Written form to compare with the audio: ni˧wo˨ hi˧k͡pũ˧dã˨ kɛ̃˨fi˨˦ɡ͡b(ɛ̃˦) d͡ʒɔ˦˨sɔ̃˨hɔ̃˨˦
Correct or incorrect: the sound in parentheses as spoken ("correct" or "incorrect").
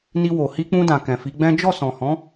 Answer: correct